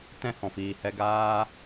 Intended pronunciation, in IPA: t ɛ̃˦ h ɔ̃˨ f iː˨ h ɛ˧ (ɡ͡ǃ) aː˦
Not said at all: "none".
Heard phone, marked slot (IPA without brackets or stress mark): ɡ